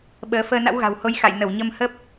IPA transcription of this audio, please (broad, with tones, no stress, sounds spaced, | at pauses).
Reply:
ɓ əː˨˦ f əː˧ n a̰˧˥ w ɣ a̤˨˩ w h o˨˦ j x a̰˧˨ j n ə˧˩ w ɲ ə˧ m h ə˦˥ p̚